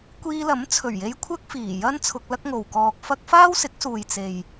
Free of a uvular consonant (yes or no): yes